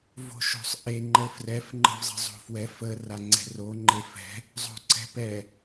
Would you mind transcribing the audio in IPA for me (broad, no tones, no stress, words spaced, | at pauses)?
vo̤ʃo̤sˤʔe ŋ͡ǃəfrɛf ŋ͡ǃə̤vzˤə̤zˤo̤fwɛf ə raŋ͡ǀɛ̤ro ŋ͡ǃefɛ̤ | zˤo̤ǀɛ̤pɛ